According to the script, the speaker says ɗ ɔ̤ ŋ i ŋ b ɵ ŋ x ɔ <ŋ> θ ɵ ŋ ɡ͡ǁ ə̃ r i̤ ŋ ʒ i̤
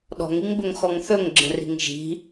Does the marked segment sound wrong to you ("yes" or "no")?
no